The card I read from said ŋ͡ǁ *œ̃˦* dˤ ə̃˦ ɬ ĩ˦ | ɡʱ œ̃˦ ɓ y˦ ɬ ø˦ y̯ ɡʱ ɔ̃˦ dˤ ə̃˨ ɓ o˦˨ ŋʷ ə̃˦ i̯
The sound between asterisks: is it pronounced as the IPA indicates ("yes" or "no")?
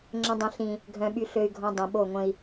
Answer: no